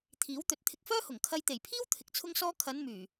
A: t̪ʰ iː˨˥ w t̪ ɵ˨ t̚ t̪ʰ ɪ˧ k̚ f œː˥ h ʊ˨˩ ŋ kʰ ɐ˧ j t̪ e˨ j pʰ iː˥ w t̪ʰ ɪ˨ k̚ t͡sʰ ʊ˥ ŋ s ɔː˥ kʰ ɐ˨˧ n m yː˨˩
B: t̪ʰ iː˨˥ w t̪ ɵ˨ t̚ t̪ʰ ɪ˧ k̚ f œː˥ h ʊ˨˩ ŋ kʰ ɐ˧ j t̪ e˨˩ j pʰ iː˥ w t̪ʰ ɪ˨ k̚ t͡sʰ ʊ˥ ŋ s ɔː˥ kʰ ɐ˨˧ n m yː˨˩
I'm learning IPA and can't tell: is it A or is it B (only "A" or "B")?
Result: B